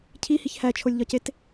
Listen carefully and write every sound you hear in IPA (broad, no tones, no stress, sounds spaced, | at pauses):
cʰ i h i ç h æ t͡ʃʰ o lʲ ʎ ɒ c e t